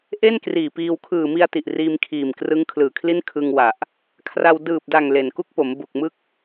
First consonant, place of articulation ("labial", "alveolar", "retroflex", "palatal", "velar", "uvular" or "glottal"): glottal